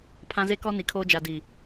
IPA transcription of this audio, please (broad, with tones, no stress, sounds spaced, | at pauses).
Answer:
pʰ ã˦ z e˦ k ɔ˦ n i˨ kʰ oː˦ d͡ʒ a˨ d i˨